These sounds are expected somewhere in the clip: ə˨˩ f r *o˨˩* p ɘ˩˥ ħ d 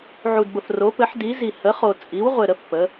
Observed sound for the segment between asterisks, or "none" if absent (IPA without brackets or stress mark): o˩˥